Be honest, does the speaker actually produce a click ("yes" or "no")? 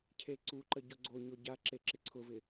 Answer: yes